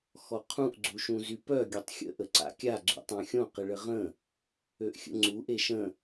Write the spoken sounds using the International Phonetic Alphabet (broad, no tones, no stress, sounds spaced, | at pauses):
x ɔ qʰ ũ ʔ ɡ͡ǀ u ʃ ũ z y p œ ɡʲ o tˤ xʲ ə̰ ʔ ə ǀ a̰ kʲ a ɡ͡ǀ ṵ tˤ œ̃ xʲ õ q ə ɭ ə ʁ ə̃ | ø ʔ xʲ ə̰ ŋ͡ǀ u ʔ e ʃ ə̃